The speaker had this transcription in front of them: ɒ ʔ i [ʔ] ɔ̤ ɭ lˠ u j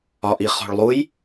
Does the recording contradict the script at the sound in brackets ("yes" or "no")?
yes